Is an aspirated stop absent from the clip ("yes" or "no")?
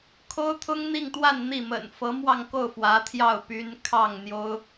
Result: no